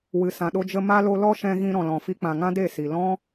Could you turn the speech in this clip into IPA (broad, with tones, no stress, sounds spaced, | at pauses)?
w ɨ˨ s ã˨ ɗ o˧ d͡ʒ ə˧ m a˧ l o˧ l ɔ˦ ʃ ɛ̃˧ ɣ ĩ˧ ɾ ɔ̃˨ l ɔ̃˨ f i˧ k͡p ã˨ ŋ ã˦ d e˦˨ s i˨ l ɔ̃˦